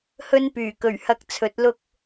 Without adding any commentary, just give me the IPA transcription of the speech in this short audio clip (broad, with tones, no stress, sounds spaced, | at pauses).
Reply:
h ɵ˥ n p yː˨˩ k ɵ˨˩ ɥ h ɐ˨ k̚ t͡sʰ ɵ˨˥ t̚ l ʊ˥ k̚